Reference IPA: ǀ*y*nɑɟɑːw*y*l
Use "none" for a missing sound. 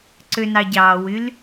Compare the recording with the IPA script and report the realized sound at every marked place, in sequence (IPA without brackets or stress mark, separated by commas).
ø, y